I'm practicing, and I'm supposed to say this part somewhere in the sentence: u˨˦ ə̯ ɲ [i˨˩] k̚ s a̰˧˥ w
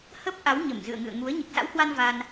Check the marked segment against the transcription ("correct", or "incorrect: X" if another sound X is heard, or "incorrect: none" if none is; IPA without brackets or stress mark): correct